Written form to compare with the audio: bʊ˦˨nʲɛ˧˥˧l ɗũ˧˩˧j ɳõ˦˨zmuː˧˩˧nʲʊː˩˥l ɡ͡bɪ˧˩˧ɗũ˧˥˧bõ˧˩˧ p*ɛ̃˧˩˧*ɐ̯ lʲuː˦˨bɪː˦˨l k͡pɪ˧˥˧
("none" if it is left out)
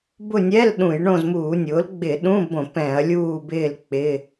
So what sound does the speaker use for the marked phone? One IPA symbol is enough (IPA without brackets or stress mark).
ɛ̃˧˩˧